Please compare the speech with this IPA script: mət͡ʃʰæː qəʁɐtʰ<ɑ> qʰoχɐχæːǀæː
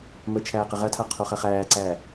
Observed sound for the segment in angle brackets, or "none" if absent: a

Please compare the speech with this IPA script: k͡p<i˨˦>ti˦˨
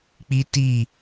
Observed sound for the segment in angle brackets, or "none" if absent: i˦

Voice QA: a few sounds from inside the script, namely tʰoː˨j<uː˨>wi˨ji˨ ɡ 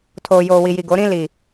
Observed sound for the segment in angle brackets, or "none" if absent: oː˨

